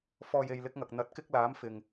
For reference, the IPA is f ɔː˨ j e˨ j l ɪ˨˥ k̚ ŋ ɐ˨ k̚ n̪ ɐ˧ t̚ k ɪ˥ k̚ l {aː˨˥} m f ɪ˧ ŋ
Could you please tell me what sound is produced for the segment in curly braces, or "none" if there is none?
aː˨˥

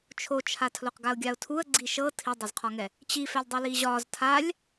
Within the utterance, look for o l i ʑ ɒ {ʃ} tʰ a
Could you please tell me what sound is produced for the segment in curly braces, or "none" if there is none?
z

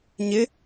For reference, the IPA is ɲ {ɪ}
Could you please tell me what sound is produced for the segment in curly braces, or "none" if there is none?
ɪ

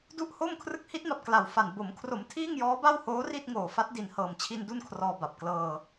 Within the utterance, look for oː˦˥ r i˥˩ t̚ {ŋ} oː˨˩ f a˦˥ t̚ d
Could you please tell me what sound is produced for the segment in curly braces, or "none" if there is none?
ŋ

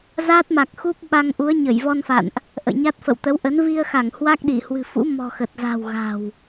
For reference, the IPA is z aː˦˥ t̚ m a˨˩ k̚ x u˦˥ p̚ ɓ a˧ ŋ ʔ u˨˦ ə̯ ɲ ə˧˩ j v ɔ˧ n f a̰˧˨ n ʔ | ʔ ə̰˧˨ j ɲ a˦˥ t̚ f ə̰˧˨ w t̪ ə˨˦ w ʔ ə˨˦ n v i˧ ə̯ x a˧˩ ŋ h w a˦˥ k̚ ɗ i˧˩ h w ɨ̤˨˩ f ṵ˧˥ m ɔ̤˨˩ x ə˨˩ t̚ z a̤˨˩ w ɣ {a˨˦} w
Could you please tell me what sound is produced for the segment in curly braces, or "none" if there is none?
a̤˨˩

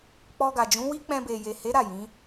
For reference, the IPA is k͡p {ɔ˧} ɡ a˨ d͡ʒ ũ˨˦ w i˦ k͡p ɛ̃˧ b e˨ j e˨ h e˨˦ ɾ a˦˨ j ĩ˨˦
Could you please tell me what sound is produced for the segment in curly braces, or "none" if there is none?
ɔ˧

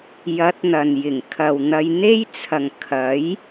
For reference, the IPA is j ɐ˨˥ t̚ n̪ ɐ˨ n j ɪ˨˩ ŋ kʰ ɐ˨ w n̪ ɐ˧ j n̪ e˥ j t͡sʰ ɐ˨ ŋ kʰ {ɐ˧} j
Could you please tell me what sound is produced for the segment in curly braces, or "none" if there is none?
ɐ˨˥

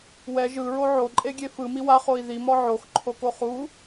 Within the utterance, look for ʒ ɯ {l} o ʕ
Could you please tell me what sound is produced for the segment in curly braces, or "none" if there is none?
ɹ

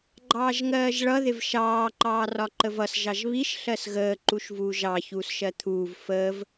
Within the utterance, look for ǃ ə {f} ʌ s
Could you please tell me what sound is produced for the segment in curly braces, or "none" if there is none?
v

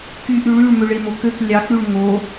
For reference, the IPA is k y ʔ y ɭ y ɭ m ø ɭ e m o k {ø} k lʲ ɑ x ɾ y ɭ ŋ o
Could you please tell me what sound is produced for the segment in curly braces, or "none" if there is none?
ø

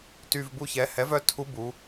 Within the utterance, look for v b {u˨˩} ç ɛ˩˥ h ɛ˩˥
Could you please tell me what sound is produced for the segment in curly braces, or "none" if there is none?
u˥˨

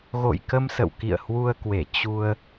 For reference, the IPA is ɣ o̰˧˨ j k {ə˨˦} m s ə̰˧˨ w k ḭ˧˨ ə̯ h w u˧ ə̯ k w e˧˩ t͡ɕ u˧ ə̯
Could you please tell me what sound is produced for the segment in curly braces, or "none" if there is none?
ə˧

